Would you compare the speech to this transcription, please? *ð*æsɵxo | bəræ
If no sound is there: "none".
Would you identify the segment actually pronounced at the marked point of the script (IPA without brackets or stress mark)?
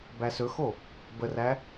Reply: b